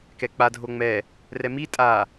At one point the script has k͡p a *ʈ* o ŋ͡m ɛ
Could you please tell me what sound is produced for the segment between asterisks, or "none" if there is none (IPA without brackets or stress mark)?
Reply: dʱ